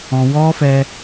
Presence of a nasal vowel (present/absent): present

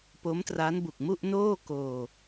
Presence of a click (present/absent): absent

